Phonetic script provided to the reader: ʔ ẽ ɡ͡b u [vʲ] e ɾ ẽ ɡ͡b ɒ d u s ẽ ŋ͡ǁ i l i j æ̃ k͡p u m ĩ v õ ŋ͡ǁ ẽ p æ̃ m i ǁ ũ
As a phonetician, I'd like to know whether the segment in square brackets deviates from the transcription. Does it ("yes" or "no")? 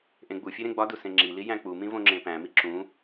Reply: yes